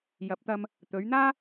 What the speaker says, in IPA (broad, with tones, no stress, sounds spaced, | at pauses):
j ɐ˨˥ p̚ t̪ ɐ˧ m | t̪ ɵ˨˧ ɥ n̪ aː˥